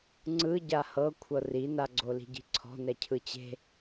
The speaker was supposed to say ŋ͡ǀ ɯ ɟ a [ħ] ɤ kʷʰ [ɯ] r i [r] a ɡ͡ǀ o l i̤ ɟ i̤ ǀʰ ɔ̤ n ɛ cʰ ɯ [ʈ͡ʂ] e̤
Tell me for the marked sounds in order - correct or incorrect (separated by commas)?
incorrect, incorrect, incorrect, incorrect